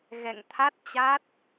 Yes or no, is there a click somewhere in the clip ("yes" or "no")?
no